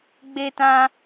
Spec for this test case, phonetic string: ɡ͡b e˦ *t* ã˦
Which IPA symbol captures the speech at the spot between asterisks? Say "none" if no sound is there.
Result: t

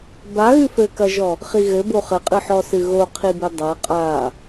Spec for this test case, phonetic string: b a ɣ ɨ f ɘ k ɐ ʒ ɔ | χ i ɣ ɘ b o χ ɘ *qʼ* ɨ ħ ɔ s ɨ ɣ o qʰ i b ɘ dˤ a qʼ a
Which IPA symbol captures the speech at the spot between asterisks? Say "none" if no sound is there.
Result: qʼ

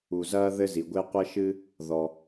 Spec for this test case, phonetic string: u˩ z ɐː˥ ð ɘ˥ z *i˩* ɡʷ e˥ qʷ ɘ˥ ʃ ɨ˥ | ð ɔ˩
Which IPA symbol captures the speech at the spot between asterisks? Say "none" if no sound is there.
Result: i˩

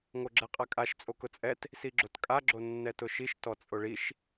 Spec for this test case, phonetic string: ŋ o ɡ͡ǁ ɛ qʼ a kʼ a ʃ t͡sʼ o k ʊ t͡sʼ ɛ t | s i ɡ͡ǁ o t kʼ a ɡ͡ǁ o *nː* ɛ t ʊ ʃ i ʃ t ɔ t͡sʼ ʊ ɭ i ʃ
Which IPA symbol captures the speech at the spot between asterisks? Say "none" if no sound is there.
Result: nː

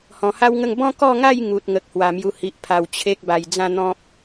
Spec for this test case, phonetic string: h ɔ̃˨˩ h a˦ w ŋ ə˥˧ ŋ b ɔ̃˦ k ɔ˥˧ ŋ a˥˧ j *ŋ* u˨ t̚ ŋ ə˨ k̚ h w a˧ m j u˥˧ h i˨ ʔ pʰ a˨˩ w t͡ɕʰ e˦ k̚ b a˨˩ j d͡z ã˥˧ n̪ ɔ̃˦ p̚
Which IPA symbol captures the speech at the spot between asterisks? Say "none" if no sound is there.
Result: ŋ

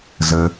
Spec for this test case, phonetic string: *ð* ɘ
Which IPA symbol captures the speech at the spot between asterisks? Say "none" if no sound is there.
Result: z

